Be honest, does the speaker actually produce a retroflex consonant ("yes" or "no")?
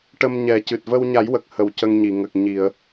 yes